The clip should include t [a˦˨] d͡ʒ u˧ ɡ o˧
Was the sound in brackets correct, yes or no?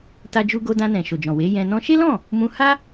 no